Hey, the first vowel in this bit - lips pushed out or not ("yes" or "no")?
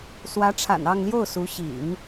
no